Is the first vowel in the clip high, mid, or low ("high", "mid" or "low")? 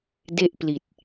mid